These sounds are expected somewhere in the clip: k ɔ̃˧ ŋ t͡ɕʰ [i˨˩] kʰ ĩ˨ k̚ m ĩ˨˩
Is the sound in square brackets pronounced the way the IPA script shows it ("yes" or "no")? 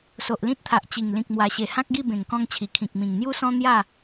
yes